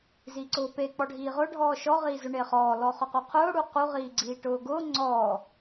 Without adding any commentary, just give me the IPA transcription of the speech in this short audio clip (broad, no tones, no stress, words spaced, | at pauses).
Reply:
ziǀʊːpe k͡pɔɖʱiːʁʊ ɖʱɔːʃɔ ʁiːzʊɳeχɔː lɔχʊquqʰʊː ɽuqu ʁiːɡ͡ǀiːʈʊːɡʊː ŋ͡ǀɔː